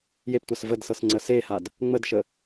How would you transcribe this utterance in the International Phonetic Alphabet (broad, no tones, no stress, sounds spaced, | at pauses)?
j e p tʷ a s v ə d s ɤ s ŋ͡ǀ ə s e h a d | ŋ͡m ə d ʃ ə